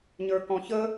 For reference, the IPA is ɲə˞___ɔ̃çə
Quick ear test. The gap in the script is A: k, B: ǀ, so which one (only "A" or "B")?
A